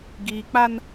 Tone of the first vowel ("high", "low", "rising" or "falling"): low